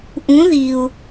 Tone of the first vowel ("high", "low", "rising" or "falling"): rising